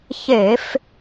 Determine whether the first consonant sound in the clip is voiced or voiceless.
voiceless